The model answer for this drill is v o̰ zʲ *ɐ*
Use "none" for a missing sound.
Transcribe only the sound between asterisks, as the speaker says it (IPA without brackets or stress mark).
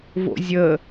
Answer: ə